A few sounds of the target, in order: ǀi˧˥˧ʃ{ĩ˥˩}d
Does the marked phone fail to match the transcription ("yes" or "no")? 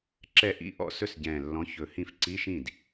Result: no